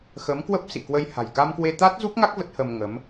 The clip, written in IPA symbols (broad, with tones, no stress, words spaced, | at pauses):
xə˨˦mkwə˦˥p̚ sḭ˧˨kwə˧j ha̤˨˩jka˧mkwe˧ t̪a˦˥t̚zu˦˥p̚ŋa˦˥k̚ və˦˥t̚hə˧m ŋə˨˦m